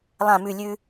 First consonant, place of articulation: alveolar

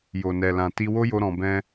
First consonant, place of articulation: palatal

